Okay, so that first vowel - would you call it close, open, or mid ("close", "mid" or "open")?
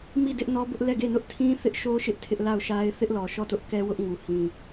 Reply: close